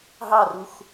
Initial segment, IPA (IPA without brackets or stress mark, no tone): ɦ